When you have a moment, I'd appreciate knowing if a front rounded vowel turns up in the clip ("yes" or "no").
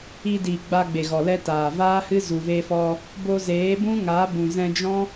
no